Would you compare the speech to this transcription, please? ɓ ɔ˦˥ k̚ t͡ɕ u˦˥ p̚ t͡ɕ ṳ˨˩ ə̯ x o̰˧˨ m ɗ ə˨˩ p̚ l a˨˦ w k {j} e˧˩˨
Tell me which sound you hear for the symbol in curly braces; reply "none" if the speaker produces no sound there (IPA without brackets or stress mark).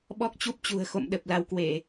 w